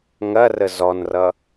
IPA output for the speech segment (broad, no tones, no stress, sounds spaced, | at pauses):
ŋ ɐ r ə z ɔ n r ʌ